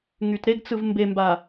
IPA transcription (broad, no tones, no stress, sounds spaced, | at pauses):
ŋ y t ɾ e ɡ t͡s ɯ v m b e m b a